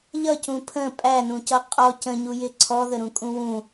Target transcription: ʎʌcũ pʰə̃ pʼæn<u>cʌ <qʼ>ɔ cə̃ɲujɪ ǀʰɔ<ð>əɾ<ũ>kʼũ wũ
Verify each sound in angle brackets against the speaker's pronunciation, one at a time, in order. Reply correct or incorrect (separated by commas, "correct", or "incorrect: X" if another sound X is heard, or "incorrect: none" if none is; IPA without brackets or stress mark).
incorrect: ũ, correct, correct, correct